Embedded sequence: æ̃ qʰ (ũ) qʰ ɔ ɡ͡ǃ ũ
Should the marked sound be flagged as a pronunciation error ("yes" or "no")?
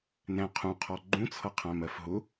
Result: no